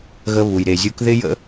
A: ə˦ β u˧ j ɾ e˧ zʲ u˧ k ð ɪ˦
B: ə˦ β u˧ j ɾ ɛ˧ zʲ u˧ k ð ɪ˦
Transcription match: A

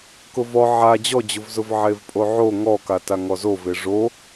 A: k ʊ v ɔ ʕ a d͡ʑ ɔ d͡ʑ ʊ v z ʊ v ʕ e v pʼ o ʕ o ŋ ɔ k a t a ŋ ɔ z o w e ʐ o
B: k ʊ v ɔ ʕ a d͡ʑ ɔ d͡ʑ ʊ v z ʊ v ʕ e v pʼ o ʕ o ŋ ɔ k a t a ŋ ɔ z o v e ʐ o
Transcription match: B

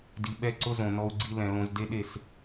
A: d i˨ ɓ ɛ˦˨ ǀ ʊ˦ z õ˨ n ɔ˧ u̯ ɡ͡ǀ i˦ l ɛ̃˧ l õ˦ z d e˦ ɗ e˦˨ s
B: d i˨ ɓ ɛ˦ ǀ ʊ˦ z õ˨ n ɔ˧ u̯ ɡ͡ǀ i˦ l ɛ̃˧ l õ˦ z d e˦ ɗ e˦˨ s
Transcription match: A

